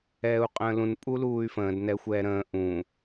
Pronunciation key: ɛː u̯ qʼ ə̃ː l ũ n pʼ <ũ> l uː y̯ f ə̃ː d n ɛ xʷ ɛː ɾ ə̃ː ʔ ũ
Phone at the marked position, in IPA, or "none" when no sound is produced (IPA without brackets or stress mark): u